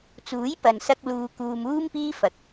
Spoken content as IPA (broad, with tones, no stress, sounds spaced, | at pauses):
t͡s uː˨˥ j p ɐ˨ n s ɐ˧ k̚ l uː˧ k uː˧ m uː˥ m p iː˥ f ɐ˧ k̚